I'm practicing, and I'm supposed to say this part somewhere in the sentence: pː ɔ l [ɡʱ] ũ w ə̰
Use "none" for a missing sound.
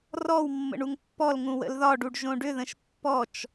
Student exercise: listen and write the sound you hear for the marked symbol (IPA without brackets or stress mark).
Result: ŋ